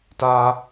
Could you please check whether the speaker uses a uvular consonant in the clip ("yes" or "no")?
no